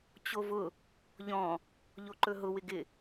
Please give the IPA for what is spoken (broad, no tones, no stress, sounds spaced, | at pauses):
t͡ɕ o v ʊ | ʎ ɔ̃ | ʎ o ǃ ɵ ɦ ʊ w ɪ ɡ ɪ